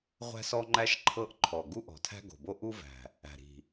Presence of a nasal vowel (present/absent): absent